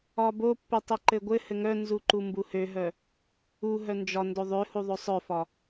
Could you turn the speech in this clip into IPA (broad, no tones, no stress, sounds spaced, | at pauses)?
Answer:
ɒ b o pː ø tˤ e ǃ ɘ ɡʷ ɘ h ɘ ŋ œ n z u ǃ u m b u h ø ɦ œ | u ɦ œ n d͡ʒ ɒ n d o ðˤ ø h u ðˤ o sˤ œ f ɒ